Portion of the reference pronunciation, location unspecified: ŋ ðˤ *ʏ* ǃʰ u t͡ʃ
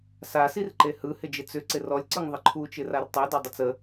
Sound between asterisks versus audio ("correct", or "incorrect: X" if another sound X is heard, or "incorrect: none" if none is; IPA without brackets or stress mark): incorrect: ɪ